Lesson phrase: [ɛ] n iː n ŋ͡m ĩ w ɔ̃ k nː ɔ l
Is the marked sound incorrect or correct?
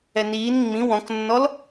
correct